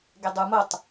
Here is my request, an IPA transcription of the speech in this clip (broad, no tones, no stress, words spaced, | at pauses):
ɡedˤumotˤ